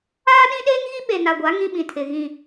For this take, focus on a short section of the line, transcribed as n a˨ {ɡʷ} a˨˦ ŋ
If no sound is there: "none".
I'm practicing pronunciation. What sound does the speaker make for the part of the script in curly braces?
ɡʷ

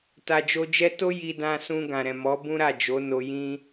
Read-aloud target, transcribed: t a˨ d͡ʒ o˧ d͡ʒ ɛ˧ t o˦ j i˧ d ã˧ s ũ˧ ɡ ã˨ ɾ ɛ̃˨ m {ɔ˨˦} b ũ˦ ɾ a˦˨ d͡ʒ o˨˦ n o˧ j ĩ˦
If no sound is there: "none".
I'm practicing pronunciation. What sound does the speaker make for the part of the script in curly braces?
ɔ˨˦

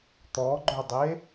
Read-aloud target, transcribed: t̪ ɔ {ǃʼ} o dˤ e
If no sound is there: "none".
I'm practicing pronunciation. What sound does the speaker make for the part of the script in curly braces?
ɡ͡ǃ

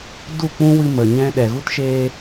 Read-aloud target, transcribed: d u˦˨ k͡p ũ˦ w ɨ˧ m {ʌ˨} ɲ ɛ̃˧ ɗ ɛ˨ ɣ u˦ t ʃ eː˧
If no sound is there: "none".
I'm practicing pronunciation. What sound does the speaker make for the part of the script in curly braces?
ə˨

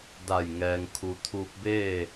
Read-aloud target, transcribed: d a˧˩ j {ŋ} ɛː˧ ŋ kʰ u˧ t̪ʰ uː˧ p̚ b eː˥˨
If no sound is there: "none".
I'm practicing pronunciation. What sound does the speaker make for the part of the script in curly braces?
ŋ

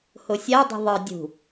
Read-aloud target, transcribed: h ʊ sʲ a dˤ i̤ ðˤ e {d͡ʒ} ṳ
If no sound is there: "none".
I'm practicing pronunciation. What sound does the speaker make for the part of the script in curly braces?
dʲ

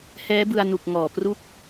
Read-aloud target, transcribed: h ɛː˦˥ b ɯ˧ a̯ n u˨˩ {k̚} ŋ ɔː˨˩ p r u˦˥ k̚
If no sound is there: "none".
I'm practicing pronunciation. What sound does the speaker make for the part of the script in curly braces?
k̚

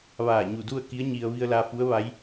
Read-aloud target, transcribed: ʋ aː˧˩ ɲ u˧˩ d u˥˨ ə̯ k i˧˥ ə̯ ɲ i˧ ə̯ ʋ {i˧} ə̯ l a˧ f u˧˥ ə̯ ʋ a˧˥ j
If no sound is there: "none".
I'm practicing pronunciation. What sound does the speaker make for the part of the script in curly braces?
i˧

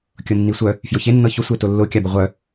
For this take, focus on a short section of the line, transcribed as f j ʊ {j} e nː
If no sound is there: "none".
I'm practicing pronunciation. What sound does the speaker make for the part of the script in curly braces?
ç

